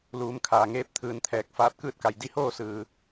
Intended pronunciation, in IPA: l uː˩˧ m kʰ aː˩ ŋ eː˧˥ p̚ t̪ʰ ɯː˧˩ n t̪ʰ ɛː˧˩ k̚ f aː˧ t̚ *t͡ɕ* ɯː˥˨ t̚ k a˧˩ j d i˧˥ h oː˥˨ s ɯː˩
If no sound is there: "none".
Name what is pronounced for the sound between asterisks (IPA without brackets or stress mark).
k